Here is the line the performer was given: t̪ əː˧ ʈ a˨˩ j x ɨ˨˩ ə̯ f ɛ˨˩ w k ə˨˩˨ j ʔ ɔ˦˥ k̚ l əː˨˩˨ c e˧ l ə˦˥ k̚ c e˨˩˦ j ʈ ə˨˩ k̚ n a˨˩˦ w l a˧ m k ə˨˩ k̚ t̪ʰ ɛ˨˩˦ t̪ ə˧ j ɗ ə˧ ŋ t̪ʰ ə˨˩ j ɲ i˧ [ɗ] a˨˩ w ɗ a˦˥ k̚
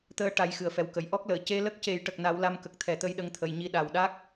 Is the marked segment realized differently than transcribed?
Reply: no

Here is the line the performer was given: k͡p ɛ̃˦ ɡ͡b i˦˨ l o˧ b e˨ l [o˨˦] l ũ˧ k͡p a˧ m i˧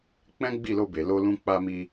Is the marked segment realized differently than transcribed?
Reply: yes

